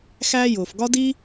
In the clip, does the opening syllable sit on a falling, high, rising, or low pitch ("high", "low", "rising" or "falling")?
high